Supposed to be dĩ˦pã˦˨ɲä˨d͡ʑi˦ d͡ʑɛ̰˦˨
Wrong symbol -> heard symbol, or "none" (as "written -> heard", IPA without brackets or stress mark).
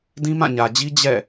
p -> m